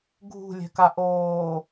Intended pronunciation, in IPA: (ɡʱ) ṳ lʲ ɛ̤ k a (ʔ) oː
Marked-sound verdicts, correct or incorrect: correct, correct

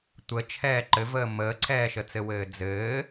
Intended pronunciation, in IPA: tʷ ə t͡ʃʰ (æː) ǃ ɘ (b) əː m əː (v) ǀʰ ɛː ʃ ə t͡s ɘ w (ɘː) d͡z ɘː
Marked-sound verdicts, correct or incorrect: incorrect: ɛː, incorrect: v, incorrect: none, correct

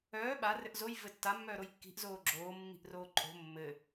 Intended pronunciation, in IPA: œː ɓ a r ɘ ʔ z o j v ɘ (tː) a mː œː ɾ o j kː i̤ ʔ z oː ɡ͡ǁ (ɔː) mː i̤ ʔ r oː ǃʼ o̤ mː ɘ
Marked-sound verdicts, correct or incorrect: correct, incorrect: oː

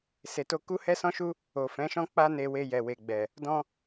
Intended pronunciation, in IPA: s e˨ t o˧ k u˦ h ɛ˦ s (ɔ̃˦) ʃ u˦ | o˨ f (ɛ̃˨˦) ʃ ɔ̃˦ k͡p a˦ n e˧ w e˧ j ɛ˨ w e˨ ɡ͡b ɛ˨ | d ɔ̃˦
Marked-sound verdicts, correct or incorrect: correct, correct

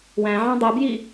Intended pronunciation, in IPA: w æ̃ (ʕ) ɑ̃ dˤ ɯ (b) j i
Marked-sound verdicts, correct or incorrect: correct, correct

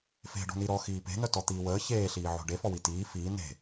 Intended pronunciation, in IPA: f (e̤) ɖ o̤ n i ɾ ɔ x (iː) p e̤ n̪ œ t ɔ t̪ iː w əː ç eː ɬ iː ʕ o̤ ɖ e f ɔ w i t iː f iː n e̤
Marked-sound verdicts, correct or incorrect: correct, correct

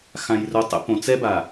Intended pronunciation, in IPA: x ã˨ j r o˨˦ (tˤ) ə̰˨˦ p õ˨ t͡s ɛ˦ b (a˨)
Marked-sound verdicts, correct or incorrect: correct, correct

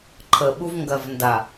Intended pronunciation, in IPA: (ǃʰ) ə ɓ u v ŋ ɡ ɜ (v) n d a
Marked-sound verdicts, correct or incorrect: correct, correct

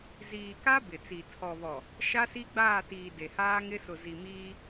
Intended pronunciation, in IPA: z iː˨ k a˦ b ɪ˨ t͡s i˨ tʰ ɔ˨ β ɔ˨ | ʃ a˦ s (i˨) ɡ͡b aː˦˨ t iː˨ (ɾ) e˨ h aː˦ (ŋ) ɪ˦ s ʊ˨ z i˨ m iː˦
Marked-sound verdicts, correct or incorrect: incorrect: i˦, incorrect: d, correct

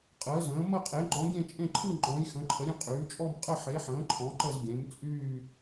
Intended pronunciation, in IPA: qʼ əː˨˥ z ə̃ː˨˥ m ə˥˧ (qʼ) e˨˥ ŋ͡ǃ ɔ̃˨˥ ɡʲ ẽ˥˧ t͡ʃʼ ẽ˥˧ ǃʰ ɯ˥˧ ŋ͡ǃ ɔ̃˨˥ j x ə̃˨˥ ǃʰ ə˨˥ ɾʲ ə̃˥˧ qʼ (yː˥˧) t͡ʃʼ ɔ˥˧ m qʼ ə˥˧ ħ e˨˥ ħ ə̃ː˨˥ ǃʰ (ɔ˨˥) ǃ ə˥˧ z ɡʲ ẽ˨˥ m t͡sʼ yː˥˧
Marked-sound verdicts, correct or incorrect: correct, incorrect: yː˨˥, incorrect: ɔ̃˨˥

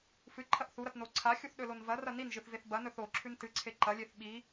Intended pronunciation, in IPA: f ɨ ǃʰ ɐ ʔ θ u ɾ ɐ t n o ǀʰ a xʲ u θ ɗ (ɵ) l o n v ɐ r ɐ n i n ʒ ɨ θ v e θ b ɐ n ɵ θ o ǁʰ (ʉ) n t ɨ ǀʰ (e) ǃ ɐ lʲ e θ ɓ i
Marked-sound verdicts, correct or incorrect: correct, correct, correct

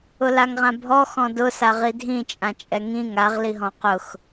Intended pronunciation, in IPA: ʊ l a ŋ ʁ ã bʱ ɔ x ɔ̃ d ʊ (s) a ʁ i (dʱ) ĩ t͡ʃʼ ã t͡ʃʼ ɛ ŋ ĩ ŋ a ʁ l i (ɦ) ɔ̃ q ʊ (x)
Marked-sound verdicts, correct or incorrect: correct, correct, correct, correct

